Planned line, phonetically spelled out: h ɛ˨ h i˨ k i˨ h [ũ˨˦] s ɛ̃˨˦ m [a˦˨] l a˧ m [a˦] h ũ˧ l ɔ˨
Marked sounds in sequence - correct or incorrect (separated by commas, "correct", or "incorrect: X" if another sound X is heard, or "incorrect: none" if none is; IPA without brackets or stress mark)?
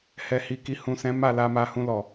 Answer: incorrect: ũ˨, correct, incorrect: a˧